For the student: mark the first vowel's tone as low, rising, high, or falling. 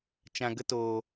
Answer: low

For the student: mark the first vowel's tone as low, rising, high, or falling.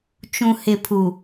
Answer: low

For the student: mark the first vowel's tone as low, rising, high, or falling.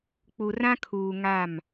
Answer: low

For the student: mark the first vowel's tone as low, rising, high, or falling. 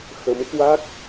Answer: rising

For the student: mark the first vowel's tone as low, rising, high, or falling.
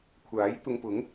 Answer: rising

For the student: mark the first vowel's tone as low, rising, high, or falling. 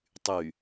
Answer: low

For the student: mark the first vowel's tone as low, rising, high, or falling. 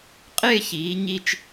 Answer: falling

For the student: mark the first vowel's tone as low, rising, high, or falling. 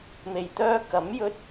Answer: low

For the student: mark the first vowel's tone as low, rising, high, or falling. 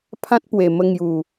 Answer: high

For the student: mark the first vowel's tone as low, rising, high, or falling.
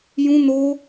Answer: high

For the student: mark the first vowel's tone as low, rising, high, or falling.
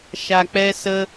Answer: low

